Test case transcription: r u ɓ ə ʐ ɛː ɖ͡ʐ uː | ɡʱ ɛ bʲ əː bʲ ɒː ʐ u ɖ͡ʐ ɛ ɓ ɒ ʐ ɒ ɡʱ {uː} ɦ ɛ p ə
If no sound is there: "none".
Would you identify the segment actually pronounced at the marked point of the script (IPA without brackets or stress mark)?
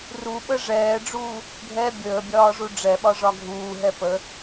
uː